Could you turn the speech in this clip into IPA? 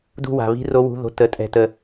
d ṳ˦˨ w a̤˨ β i̤˦˥ r o˦˥ w ṳ˧˥˧ ð o̤˧˥˧ t ə˧˥˧ tʼ ɛ̤˦˨ t ə˦˨

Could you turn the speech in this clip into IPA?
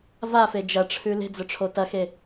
v a f e d͡ʒ ɐ ʈ͡ʂʰ ʉ l e̤ d͡z ɵ ʈ͡ʂʰ o t ɐ x e

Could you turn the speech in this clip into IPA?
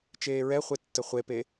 t͡ʃ eː ɹ ɛ χʷ e tː ə χʷ e p e

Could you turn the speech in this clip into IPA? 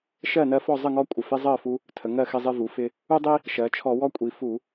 ʃ ɜ˥˨ n ɜ˦ f ɔ˥˨ zˤ ə˥˨ ŋ ɔ˦ kʷʼ ɪ˨˩ f ɪ˦ zˤ ɜ˥˨ f u˦ | tʰ ə˩˧ ŋ ɜ˥˨ x ɪ˦ zˤ ɪ˦ v u˩˧ f ɪ˦ | u˦ dˤ i˦ | ʃ ɜ˩˧ t͡ʃʰ ɔ˧˩˧ w ɔ˦ kʷʼ i˩˧ f u˧˩˧

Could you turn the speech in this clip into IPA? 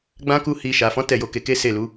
ɡ͡b ã˦ k u˦ h i˧ ʃ a˨ f ɔ̃˨˦ t ɛ˦˨ j o˧ k e˧ k e˦ s e˦˨ l u˨˦

